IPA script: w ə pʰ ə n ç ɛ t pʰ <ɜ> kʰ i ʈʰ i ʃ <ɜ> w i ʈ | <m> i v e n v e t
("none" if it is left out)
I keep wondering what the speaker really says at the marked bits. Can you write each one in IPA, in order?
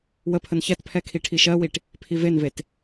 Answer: ɛ, ɜ, pʰ

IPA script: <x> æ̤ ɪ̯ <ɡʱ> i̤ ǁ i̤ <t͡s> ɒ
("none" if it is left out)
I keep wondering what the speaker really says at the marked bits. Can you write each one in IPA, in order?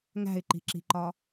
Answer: ŋ, ǃ, ǃ

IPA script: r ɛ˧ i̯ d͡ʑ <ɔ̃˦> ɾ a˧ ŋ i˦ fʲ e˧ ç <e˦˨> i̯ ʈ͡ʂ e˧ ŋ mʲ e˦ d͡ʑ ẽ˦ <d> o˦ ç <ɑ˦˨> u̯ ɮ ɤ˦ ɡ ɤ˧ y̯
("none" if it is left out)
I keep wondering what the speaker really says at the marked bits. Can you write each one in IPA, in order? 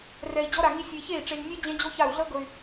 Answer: ɔ˦, e˦˨, d͡ʑ, a˦˨

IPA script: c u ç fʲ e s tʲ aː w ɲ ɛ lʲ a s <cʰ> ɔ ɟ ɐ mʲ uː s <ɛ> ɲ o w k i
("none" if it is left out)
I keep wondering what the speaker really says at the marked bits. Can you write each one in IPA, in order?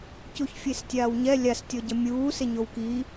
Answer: tʲ, e

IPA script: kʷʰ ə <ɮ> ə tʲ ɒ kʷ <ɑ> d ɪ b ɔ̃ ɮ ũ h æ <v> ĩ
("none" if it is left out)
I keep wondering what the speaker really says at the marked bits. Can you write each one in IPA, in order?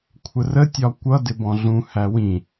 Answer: r, ʌ, w

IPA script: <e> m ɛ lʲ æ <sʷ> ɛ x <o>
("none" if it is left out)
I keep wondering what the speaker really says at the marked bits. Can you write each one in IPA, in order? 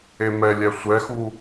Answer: e, sʷ, u

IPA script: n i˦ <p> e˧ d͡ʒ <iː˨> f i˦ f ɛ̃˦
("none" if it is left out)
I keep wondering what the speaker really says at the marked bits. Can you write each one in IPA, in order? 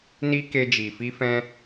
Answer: k, i˨

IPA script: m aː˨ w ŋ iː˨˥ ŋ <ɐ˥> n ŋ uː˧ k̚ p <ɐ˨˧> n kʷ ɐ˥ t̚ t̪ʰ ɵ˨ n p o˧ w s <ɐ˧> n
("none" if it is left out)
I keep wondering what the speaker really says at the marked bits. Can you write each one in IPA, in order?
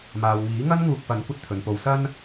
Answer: ɐ˥, ɐ˨˧, ɐ˥

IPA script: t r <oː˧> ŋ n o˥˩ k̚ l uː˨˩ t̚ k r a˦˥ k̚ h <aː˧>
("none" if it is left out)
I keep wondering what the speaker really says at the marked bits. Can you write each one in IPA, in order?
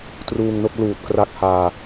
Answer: uː˧, aː˧

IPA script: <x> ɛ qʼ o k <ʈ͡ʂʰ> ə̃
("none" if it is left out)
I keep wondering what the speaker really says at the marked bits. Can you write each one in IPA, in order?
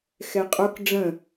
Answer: x, ɖ͡ʐ

